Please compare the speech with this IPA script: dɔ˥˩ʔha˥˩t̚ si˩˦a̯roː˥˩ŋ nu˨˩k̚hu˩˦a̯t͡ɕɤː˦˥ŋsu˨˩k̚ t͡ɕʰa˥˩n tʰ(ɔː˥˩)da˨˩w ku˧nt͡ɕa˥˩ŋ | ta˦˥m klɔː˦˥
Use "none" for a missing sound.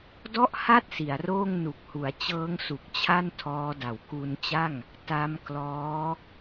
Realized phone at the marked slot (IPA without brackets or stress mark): ɔː˦˥